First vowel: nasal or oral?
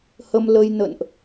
oral